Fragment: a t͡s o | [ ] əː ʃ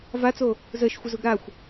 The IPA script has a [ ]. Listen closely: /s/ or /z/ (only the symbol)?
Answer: z